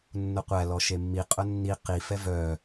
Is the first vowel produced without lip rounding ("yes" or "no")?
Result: no